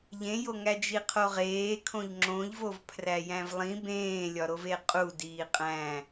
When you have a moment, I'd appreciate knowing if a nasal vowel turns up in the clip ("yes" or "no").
yes